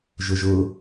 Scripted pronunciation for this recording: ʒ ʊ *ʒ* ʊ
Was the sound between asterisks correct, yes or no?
yes